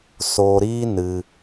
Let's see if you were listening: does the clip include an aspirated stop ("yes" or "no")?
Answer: no